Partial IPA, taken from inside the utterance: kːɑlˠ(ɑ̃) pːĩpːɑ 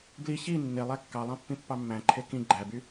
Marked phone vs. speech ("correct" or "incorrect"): correct